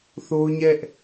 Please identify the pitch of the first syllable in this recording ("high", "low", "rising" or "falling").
high